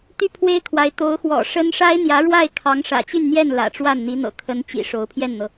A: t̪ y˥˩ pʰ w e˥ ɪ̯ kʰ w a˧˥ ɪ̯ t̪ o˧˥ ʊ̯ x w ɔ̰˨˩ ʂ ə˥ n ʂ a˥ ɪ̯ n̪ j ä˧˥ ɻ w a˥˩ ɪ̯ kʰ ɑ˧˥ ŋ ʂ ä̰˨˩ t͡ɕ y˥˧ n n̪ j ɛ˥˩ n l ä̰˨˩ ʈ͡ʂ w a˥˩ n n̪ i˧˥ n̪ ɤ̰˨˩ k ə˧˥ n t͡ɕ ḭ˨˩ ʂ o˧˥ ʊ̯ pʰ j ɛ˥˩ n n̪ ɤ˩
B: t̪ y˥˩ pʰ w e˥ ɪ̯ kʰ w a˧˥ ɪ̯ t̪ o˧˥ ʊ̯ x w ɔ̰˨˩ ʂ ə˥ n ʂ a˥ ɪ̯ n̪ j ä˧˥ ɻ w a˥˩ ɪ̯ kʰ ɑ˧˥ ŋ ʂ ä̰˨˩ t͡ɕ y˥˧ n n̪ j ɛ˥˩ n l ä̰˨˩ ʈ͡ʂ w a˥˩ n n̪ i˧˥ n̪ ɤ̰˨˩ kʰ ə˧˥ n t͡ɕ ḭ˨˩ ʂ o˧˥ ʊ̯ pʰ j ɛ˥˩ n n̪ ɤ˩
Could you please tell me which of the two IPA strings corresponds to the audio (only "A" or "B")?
B